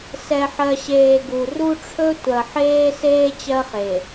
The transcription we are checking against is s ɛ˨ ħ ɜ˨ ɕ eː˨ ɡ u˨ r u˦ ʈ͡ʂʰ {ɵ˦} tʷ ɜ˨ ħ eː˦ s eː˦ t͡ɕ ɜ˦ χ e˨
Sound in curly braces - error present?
no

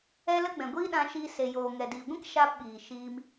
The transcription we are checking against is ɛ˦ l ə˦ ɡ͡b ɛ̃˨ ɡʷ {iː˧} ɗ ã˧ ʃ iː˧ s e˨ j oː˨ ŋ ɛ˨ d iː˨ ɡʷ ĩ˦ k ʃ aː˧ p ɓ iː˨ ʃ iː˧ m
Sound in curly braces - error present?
yes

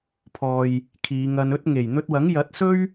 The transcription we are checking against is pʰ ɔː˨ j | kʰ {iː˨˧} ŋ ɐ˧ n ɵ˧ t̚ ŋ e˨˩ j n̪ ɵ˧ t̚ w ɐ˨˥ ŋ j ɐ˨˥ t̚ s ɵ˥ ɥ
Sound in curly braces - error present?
no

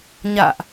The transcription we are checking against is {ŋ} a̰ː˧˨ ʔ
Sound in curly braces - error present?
yes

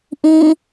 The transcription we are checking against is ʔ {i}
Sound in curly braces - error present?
yes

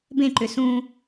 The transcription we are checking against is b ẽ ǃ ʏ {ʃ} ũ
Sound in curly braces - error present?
yes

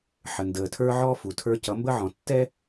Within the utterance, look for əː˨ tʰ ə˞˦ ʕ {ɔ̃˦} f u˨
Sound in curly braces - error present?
yes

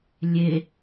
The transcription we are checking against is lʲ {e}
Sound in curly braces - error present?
no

